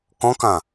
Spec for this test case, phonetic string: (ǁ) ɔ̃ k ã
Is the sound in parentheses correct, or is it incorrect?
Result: incorrect: k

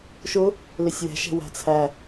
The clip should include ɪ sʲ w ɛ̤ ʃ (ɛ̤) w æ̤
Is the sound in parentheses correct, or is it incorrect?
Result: correct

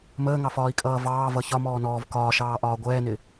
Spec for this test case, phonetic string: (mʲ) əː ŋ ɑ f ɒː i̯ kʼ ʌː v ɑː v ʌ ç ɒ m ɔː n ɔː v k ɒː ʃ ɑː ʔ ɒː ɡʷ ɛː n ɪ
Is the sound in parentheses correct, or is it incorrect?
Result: incorrect: m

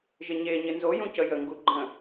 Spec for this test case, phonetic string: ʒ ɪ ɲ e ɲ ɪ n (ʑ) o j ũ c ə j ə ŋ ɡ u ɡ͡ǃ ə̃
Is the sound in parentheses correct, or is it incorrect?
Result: incorrect: z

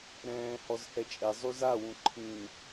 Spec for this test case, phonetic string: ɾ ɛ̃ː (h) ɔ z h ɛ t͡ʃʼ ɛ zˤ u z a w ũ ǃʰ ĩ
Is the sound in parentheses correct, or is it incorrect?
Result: correct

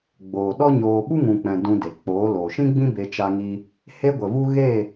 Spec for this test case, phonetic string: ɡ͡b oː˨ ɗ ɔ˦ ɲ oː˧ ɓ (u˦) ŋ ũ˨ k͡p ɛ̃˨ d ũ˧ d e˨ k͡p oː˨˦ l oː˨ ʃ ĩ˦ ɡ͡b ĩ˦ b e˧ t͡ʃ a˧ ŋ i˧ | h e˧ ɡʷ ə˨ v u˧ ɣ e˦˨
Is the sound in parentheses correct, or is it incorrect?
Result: correct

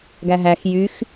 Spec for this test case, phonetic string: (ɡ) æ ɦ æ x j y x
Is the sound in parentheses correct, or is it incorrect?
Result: correct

